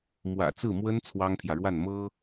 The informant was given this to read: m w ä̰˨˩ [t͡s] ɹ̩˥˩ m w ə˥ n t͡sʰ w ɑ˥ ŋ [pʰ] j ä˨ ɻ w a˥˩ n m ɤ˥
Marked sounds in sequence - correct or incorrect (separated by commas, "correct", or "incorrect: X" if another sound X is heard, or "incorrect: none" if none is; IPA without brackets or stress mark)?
correct, correct